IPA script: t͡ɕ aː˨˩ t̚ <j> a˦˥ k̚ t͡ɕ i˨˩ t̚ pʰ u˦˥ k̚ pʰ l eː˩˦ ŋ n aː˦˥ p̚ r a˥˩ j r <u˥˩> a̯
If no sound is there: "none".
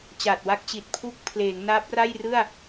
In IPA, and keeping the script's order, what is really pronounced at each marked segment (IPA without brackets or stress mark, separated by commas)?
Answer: w, ɯ˥˩